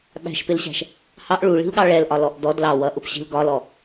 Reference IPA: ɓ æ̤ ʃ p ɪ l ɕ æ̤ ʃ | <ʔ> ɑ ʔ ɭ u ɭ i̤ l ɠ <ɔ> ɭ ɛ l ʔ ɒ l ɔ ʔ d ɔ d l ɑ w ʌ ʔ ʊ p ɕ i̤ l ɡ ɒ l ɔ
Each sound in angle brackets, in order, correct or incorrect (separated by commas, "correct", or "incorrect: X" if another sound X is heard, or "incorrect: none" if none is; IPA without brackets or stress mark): incorrect: h, incorrect: ɑ